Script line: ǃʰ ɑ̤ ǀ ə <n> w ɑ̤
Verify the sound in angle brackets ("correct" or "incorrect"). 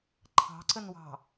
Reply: correct